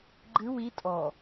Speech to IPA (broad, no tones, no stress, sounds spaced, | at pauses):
ɡ͡ǃ ɨ w i tʼ ɔ